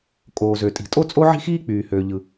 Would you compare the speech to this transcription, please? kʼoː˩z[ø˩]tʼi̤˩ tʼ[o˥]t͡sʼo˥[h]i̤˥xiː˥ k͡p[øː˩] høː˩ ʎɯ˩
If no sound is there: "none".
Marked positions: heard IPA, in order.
ø˩, o˥, ʕ, yː˩

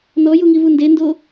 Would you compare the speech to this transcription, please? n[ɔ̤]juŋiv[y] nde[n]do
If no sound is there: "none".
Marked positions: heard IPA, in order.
ɔ, u, n

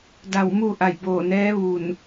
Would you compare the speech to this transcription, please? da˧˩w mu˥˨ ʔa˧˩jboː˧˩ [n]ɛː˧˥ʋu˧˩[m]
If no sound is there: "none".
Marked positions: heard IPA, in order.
n, n

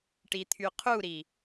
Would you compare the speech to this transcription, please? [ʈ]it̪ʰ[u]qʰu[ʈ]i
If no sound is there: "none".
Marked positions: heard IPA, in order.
ʈ, y, ɾ

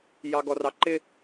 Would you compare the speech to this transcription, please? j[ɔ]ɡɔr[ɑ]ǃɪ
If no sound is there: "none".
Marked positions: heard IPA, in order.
ɑ, ɑ

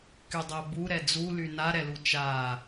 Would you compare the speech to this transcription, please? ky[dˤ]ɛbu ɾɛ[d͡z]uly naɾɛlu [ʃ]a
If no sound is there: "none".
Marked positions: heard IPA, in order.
dˤ, d͡z, t͡ʃ

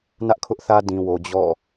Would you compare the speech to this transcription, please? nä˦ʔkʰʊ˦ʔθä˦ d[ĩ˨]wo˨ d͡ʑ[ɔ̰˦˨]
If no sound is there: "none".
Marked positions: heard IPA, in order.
ĩ˨, ɔ̰˦˨

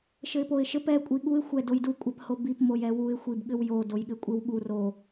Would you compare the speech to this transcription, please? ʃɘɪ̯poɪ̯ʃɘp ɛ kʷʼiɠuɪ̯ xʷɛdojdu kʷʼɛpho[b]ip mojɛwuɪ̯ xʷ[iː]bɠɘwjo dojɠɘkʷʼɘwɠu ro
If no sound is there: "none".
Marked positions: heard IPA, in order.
b, i

